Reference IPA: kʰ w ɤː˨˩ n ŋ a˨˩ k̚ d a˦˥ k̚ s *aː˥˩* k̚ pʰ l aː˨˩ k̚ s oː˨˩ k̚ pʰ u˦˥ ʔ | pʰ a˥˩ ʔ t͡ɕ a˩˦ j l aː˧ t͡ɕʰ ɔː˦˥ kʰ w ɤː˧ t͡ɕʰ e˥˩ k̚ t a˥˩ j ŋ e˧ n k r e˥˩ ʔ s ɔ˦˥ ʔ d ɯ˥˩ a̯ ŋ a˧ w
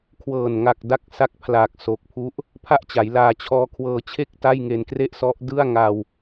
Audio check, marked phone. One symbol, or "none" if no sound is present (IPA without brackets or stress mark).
a˥˩